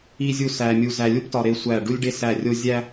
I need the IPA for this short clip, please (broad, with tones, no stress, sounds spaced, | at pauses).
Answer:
i˦ zʲ u˦ s æ˧ mʲ u˧ z æ˧ lʲ u˦ p t ɒ˧ ɾ e˦ sʷ æ˦˨ ɖ u˦ lʲ ɖ e˦ s æ˦˨ rʲ o˦ zʲ æ˦